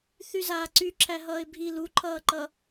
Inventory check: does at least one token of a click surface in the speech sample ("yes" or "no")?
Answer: yes